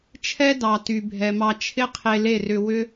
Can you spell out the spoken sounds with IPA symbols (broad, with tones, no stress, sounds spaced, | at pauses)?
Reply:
t͡ʃʰ ɛ˦ d ɑ˨ t y˨ bʱ ɛ˨ m ɑ˧ t͡ʃʰ ɪ˦ qʰ e˧ l e˦˨ r ʏ˧ w ʏ˦